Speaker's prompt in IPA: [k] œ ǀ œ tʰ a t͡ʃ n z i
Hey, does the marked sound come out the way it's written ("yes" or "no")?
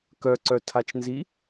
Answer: yes